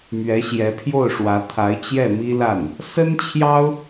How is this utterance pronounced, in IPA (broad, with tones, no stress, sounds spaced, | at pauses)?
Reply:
m ɥ ɛ˧˥ ɕ j ɛ˧˥ pʰ j o˥˩ ʊ̯ ʂ w ä˧˥ t̪ʰ a˧˥ ɪ̯ t͡ɕ j ɛ˥˩ m i˥ l a˥˩ n | s ə˥ n t͡ɕʰ j ɑ˥ ʊ̯